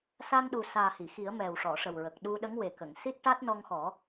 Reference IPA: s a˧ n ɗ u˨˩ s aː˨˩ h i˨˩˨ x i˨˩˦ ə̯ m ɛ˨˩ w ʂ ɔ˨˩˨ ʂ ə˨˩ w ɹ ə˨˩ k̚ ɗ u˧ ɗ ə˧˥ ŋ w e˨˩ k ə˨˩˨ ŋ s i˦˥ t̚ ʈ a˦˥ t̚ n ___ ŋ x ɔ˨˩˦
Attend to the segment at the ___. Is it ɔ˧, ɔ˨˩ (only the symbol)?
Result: ɔ˧